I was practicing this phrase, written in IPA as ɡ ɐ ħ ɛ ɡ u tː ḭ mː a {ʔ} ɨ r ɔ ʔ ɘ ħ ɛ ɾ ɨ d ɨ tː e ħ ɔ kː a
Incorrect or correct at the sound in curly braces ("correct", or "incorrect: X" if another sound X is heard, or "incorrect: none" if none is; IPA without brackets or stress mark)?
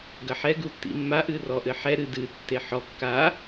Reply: correct